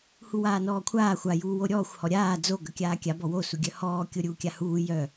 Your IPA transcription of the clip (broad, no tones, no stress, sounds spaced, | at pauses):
h u w aː n ɔː kʷʰ aː xʷ a j uː w o ɾʲ ɔː xʷ h ɔ ɾʲ aː d͡z o ɡ œ kʲ aː kʲ a b ɔ w o s u ɡʲ œ h ɔː kʲ o ɾʲ uː kʲ a h uː j œ